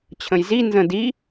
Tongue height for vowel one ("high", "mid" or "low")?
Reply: mid